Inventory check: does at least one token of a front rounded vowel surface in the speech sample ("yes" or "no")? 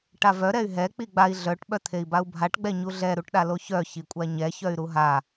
yes